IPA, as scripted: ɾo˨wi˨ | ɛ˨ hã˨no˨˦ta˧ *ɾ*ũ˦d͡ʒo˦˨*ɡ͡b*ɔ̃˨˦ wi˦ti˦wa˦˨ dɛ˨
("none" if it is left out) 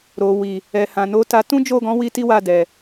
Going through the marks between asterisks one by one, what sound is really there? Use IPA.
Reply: t, ɡ

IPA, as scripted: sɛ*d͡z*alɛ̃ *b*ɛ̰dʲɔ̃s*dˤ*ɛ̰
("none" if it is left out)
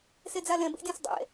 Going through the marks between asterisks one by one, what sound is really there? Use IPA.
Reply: d͡z, b, dˤ

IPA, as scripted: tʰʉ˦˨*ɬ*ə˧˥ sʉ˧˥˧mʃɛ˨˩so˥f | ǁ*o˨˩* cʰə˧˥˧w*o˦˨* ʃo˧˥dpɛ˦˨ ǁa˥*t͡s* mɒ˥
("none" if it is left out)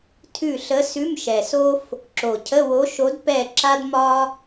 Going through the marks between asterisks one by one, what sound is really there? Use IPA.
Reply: ɬ, o˨˩, o˧˥, d

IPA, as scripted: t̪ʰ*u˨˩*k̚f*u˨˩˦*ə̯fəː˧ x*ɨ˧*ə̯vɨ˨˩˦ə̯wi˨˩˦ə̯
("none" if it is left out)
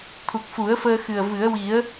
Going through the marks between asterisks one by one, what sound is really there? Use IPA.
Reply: u˨˩, u˨˩˦, ɨ˨˩

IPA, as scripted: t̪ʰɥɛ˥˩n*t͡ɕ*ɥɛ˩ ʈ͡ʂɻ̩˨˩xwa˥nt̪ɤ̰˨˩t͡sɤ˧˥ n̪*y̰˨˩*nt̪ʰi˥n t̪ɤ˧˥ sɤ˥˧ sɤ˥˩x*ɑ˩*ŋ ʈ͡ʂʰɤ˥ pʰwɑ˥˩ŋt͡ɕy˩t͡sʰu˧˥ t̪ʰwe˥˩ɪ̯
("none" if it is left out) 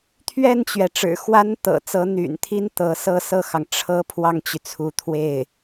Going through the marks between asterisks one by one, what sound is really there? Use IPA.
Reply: t͡ɕ, y̰˨˩, ɑ˩

